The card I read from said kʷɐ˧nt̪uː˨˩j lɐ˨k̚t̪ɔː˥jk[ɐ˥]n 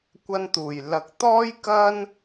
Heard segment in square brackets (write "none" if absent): ɐ˥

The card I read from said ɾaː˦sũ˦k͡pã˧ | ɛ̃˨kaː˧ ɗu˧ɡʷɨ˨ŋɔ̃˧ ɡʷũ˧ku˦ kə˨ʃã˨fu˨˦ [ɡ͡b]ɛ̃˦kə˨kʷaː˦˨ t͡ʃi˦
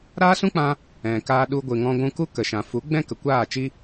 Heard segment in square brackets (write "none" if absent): ɡ͡b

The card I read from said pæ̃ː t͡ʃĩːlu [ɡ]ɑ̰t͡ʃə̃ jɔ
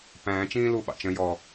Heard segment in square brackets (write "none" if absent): ɓ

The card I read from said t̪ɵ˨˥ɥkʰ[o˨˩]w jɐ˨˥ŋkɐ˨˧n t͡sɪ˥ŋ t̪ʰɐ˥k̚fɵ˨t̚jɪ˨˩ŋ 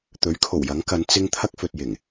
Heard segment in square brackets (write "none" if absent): o˨˩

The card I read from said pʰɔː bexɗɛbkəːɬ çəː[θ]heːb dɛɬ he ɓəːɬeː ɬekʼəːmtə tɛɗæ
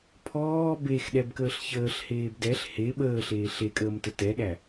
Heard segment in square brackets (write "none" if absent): ɬ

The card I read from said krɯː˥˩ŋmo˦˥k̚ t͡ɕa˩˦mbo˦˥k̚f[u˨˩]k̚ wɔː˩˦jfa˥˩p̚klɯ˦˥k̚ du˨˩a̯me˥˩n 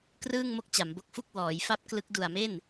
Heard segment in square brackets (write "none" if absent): u˥˩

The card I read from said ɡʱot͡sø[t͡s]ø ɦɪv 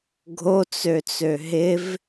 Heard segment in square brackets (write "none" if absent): t͡s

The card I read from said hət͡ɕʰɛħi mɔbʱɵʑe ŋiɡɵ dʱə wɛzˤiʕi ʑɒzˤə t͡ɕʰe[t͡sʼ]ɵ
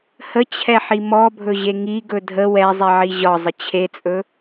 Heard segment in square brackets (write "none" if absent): t͡sʼ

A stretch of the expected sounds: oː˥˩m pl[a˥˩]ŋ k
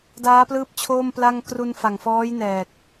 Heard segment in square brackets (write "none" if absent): a˥˩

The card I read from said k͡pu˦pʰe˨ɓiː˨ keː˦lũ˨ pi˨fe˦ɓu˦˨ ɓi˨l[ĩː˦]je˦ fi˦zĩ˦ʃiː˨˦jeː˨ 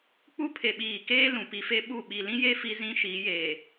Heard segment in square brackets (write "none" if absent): ĩ˦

